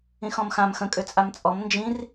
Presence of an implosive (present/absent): absent